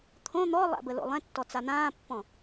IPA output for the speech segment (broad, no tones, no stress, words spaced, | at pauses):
t̪ʰõ n̪ɔlˠa̰ bəlo̰lˠɛ̃tːɔ t͡san̪ãːpːɔ̃